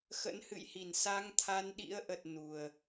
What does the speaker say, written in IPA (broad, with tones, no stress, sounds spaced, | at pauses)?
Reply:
x ə̰˧˥ n h ɨ̰˧˨ j h i˧˩ n s a˧ ŋ t̪ʰ a˧ n ɗ ḭ˧˥ ə̯ ʔ ə˨˩ t̚ n u˨˩ ə̯